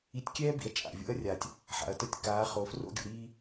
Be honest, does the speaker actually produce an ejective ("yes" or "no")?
yes